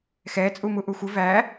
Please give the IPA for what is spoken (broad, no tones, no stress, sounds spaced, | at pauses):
x ɛ t͡sʼ u m u ʔ u xʷ ɪ v æ